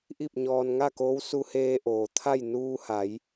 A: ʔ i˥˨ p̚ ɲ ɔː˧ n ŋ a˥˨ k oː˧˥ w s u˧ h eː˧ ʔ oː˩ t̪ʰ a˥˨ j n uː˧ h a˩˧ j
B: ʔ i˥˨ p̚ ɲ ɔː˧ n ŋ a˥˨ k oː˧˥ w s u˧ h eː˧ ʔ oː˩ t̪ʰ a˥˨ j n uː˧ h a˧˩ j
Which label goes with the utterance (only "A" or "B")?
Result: A